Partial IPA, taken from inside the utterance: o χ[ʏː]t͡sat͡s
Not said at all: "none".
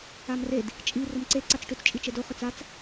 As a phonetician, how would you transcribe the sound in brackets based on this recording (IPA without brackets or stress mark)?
ʏ